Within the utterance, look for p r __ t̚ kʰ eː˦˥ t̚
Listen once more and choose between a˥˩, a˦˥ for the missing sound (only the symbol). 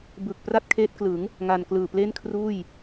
a˥˩